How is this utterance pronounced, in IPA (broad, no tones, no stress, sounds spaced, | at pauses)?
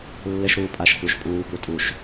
lː ɘ ʃ ɾ uː pʼ a ʃ k u ʃ pʼ uː k u tʼ u ʃ